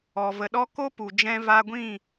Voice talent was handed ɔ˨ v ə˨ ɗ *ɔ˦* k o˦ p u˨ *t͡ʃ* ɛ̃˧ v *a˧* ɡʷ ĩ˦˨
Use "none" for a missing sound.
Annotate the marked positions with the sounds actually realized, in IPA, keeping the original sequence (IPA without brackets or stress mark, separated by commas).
ɔ˦, d͡ʒ, a˧